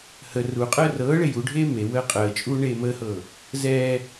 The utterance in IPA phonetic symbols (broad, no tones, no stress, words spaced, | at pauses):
hə ruqʼəː rɤːɭe juɖʱeː me wəːqʼəːt͡ʃʼuː ɳeːməːhɤː | zɛː